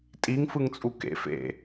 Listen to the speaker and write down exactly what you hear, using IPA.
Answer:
tʼiŋfɯŋt͡sʼu kḛf ḛ

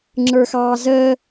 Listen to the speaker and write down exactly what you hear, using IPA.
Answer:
ŋ͡ǁə˞xɑːzəː

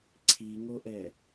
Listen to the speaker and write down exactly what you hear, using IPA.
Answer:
ǀʰiŋoʔɛ

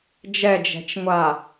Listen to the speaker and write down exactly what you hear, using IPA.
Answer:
d͡ʒɛd͡ʒɛ̤t͡ʃŋʷa

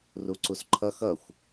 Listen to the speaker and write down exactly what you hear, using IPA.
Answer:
ruǀusǃʰʌ xʌxʷ

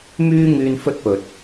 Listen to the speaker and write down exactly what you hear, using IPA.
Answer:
myː˥ŋyː˧n fɵ˥t̚pɵ˨t̚

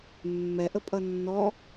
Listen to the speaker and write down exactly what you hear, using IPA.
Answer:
mːɛʔəpʼʌ nːɔ

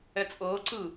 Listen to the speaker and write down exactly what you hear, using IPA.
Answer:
ɛt͡sʼɤːǀɯː

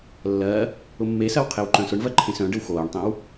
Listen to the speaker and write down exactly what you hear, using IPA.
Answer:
lːɜ | ʊmːesɜw qʰewǃœ̃sʊɳvɜ ǃʰẽsœ̃ɖəw xoːɳtˤẽw

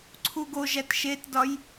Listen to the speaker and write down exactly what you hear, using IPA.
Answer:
ǀʰuɡoʒæt ʃetdɒj

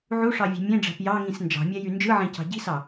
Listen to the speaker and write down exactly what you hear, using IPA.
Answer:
ʕuʂɑvʲe̤ mʲẽɖ͡ʐæ̤p jɑŋĩs nd͡ʒɑ̤mʲæjy nd͡ʒɯʕẽcɑ̤ ɟi̤sɑ

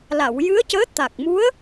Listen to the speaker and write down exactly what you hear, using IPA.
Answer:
la˨˩˨wjɨ˧˥ə̯cəː˧˥ t̪a˨˩k̚mu˧˥ə̯

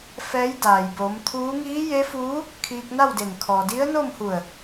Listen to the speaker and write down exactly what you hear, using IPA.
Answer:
fɛː˧˥jdaː˩jbo˩˧mt̪ʰuː˧˥ ŋiː˧˥je˧˥fuː˧˥ | kʰiː˧k̚na˥˨wde˧˩n kʰɔː˩di˧˥ə̯no˥˨mhu˧˩ə̯

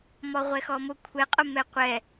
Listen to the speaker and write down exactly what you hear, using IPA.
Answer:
mɔʁʷɛxɔmʊ kʷʰɛ qʼʊmɛqʷɛ

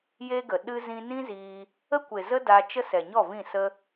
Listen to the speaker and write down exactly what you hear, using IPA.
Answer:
je˦ɡə˨ ɗɨ˦ zĩ˧nĩ˦ziː˧ | ə˦kʷe˨zə˦ da˧ t͡ʃə˦ sɛ˨ɲɔ˦˨vĩ˦˨ sə˦

